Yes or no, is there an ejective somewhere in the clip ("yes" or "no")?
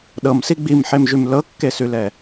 no